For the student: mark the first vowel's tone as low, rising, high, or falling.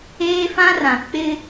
high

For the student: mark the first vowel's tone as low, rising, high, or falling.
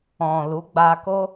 low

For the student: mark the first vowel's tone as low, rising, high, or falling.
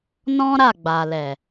high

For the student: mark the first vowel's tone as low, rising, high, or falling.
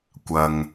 low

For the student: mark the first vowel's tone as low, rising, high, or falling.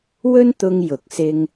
high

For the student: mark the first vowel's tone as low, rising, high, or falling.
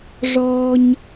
high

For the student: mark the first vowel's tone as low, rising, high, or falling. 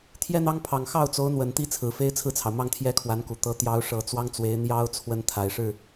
high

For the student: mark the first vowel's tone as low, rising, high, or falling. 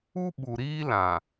high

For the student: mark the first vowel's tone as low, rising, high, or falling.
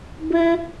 high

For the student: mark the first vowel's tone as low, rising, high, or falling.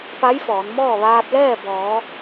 rising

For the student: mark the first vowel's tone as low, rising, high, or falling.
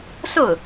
falling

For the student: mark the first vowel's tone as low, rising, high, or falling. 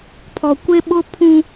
low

